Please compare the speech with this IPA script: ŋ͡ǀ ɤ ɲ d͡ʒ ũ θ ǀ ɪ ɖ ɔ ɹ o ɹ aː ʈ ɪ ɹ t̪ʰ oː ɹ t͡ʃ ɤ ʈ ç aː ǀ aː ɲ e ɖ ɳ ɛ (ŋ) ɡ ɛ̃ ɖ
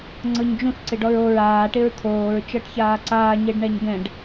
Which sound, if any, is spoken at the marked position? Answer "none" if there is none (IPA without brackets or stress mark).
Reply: ɲ